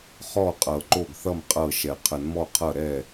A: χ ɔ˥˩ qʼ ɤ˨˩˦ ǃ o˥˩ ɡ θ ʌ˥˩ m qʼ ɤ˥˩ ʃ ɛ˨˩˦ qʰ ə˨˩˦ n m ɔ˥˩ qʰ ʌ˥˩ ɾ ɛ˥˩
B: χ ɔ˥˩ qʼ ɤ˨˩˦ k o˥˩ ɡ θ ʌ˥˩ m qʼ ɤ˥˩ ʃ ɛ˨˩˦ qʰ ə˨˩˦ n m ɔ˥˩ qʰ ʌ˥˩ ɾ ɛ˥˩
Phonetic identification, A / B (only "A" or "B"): A